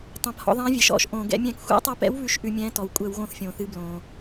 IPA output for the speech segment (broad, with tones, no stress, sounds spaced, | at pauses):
tˤ ɛ̃˩ p h ɔ̰˧˩˧ ðˤ ɛ̃ː˨˥ vʲ ɛ˩ ʃ ɔ̰˧˩˧ ʃ ʔ õː˩ ɡ ɛ̰˧˩˧ mʲ ɛ̃ː˧˩˧ k xʷ ɛ̰˨˥ tˤ o˨˥ p ɛ̰˨˥ w β ʉ˦˨ ʃ ʔ ʉ˧˩˧ mʲ ɛ̃ː˨˥ t ɔ˩ w kʷʼ ɛ˧˩˧ w ɣ õ˦˨ θ fʲ õː˩ θ ɨ˨˥ b l õː˩